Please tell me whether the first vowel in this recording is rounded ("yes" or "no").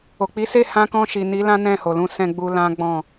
yes